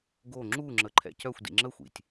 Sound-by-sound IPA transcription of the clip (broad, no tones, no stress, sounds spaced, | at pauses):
ɡ o ŋ͡ǁ u ŋ͡ǁ ə ǃʰ ɛ̰ c œ xʷ d ḭ ŋ͡ǁ ə xʷ ḭ tʲ